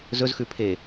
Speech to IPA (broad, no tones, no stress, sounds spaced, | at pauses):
z ɵ z x ʉ pʰ eː